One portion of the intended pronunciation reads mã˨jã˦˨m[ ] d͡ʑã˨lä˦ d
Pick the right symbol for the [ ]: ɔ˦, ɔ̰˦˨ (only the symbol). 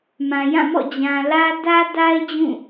ɔ̰˦˨